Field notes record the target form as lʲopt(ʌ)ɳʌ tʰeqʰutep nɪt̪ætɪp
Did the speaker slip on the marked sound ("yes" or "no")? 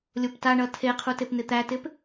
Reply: yes